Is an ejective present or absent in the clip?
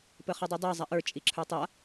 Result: present